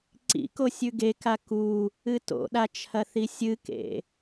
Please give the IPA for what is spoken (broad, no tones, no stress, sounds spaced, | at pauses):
ǀ ḭ k o sʲ ʉ ɡ e k a k u | ɨ t o̰ ɗ a t͡ʃʰ ɐ θ i sʲ ɨ k ḛ